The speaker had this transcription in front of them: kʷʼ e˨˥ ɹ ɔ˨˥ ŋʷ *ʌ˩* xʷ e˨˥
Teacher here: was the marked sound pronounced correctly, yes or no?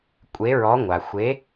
no